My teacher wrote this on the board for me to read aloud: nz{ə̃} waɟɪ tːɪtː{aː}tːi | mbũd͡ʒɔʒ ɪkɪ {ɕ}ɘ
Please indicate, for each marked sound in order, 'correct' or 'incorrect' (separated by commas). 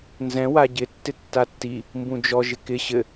incorrect, incorrect, correct